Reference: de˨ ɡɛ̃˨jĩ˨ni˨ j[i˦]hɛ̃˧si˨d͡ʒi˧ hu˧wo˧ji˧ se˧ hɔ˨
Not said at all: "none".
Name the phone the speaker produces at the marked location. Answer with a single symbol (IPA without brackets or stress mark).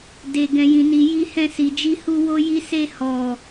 i˧